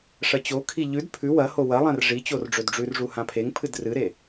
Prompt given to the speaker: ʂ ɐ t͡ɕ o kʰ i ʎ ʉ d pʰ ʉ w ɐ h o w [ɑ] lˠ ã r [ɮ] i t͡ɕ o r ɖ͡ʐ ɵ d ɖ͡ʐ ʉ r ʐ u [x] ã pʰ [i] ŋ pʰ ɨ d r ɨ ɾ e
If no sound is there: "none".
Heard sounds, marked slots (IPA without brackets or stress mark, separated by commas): ɐ, ʐ, h, e